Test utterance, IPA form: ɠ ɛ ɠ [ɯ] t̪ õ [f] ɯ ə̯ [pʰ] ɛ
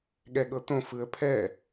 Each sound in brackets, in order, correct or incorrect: incorrect: ɤ, correct, correct

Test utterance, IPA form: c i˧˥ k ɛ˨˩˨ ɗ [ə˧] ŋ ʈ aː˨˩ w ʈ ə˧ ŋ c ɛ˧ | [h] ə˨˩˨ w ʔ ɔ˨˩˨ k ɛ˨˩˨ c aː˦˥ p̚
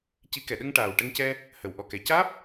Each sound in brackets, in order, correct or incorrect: correct, correct

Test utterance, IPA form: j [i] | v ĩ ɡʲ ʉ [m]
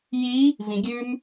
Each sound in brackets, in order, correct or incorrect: correct, correct

